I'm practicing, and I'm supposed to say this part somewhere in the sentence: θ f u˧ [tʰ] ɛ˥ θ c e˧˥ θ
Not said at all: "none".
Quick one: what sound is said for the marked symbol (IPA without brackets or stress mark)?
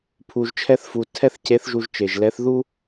tʰ